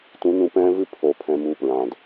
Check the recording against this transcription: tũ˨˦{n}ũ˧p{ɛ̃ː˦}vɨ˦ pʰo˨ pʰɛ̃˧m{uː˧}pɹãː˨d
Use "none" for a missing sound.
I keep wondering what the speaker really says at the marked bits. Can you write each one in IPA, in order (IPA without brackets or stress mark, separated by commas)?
n, ɛ̃ː˦, uː˧